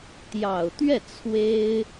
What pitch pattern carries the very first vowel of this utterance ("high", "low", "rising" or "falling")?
low